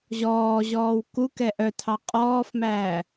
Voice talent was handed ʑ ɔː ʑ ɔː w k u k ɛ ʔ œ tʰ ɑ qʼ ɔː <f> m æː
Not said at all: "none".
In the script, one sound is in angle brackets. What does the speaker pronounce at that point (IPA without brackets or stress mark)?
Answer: f